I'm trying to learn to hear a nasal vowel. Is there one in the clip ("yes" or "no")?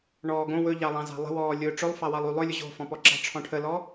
yes